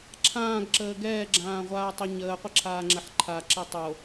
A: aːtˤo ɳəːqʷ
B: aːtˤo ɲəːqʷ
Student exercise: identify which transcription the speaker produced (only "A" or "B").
B